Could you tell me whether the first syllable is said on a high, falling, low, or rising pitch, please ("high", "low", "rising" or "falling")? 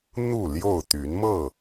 falling